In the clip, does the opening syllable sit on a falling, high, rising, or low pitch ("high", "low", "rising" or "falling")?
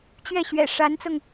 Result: falling